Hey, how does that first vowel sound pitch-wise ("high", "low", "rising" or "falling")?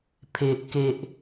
high